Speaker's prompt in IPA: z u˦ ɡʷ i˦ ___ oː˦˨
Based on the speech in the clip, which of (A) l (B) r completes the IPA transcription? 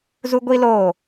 A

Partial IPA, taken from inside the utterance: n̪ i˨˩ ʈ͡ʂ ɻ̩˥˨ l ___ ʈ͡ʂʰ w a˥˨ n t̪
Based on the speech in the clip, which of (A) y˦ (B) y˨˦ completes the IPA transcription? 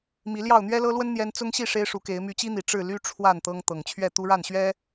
A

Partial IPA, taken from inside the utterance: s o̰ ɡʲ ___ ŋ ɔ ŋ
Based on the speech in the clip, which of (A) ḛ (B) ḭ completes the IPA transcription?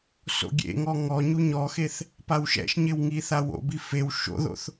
A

